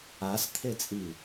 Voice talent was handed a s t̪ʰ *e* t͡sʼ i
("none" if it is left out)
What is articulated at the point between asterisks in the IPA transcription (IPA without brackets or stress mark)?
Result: e